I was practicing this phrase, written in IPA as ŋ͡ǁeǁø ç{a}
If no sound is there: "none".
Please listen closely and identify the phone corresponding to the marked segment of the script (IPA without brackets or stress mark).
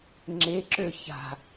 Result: a̤